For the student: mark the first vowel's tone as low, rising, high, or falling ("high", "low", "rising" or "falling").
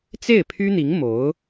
falling